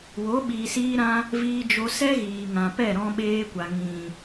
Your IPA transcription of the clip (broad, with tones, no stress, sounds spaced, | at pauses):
w o˨˦ ɓ iː˨ s iː˧ ɾ ã˧ | v iː˧ d͡ʒ o˧ s ɛ˦ ɣ iː˨ ŋ ã˨ p ɛ˦˨ ɾ ɔ̃˧ ɓ eː˧ kʷ a˨ ŋ ĩ˨